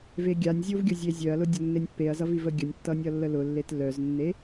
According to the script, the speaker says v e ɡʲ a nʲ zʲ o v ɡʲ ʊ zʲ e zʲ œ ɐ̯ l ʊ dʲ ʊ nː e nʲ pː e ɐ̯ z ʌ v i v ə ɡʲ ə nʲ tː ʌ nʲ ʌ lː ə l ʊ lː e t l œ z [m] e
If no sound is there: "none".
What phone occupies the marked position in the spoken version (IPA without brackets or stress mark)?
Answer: nː